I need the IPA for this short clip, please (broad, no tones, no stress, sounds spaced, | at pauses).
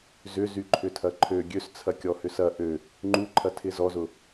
z ʏ z y ǃʰ ʏ tʰ ɐ ǃʰ ø ɡʲ ø s t͡sʰ ɐ kʲ ɔ h ʏ s ɐ ʔ ø | ŋ͡ǃ u ǃʰ ɐ tʰ ɪ z ɔ z ʊ